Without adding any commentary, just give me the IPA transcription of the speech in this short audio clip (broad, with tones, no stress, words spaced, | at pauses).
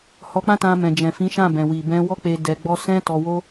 hɔ˧k͡pã˦tã˧ mɛ̃˨d͡ʒɛ̃˨fĩ˨˦ʃã˦˨ bɛ̃˨wi˨ bɛ̃˧wɔ˦k͡pe˧ dɛ˧ɡ͡bɔ˦ sɛ̃˦tɔ˧wo˦